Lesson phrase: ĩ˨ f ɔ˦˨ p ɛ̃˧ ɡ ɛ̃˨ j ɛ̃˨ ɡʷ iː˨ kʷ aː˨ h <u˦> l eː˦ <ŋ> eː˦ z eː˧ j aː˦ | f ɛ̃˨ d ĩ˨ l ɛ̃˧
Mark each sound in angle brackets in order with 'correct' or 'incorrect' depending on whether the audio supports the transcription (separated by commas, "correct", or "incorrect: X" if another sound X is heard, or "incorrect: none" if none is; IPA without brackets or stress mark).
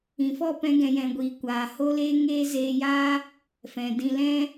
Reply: incorrect: o˦, correct